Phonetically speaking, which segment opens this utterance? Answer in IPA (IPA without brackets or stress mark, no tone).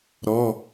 ɾ